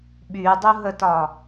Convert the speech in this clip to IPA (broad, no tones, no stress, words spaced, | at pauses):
ɓydˤuɦətɒ